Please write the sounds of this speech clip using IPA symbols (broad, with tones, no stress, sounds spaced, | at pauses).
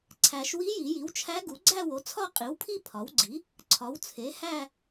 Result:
ǀʰ æ˨˩˦ ʃ w i˧˥ j i˨˩˦ j i˩˥ w t͡ʃʰ æ˧˥ ɡ u˩˥ ɡ͡ǀ æ˥˧ w o˩˥ t͡sʰ ɒ˥˧ qʼ i˩˥ w pʰ i˥˧ pʰ ɒ˩˥ w ɡ͡ǀ i˩˥ | ǀʰ ɒ˩˥ w t͡sʰ e˩˥ h æ˥˧